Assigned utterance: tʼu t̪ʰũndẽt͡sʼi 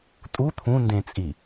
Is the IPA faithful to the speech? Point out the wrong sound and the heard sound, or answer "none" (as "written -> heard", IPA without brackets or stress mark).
none